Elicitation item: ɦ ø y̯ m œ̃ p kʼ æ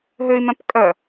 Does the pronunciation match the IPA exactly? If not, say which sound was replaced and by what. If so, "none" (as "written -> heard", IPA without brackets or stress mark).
æ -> œ